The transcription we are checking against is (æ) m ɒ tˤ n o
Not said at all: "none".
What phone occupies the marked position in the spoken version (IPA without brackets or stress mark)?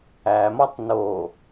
æ